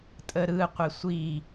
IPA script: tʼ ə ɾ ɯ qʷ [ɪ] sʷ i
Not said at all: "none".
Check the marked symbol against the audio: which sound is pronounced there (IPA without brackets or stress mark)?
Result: ɪ